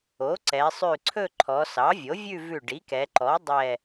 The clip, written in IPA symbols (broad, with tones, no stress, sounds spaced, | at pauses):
o˩˥ ǀ ɛ˩˧ sˤ ʉ˧˩ ǀʰ ɵ˥˧ ǃʰ ɔ˩˧ s ɑ˩˥ vʲ o˩˥ vʲ ʉ˥˧ v ʉ˧˩ ɖ i˩˥ k ɛ˩˧ ǃ ɔ˩˥ dˤ ɛ˧˩